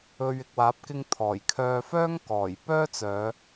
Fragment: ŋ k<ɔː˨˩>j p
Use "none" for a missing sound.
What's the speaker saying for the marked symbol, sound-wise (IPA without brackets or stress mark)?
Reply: ɔː˨˩